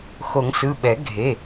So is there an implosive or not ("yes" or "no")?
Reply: yes